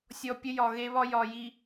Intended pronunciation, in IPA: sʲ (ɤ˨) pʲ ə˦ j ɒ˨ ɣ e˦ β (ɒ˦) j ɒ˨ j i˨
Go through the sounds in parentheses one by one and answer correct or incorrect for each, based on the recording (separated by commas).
incorrect, correct